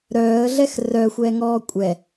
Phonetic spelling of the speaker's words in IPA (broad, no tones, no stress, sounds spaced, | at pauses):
ɾ œː ə̯ ɮ ɛ x r œ xʷ ɛ ŋ ɔː kʷʼ ɛ